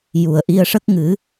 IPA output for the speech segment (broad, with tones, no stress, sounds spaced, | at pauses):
j u˨˩ ə̯ ʔ i˧ ə̯ ʂ ə˦˥ k̚ ŋ ɨ˨˩˦